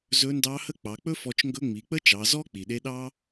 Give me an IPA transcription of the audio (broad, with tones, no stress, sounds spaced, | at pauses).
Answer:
z ɵ˧˥ n d ɑ˧˥ h ə˥ k͡p ɑ˩˧ k͡p ɵ˥ f ɔ˧ t͡ʃ ŋ ɡ ɵ˧˥ ŋ͡m i˩˧ k͡p ə˥ t͡ʃ ɑ˩˧ z ɔ˥ k͡p i˩ ɗ e˧˥ ɗ ɑ˥